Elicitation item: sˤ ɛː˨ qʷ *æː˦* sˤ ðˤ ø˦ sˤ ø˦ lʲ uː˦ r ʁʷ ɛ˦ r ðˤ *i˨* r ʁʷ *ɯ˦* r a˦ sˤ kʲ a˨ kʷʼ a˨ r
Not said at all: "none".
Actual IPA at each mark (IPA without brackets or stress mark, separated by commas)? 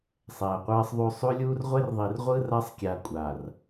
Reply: ɛː˦, i˨, ɯ˦